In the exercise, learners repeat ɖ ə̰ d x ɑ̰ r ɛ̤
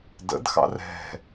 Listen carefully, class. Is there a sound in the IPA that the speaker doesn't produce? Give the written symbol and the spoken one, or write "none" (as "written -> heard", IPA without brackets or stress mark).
ɖ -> d